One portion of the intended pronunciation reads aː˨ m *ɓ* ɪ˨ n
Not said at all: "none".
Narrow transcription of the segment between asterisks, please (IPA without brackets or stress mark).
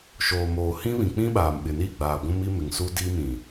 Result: ɓ